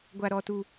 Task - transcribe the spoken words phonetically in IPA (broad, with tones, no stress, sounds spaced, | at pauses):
ɡʷ a˦ ɾ ɔ˦ t u˦